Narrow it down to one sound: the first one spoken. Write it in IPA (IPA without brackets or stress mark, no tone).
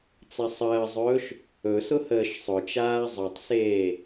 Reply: t͡s